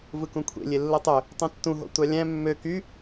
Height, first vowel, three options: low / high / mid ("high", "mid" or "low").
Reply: high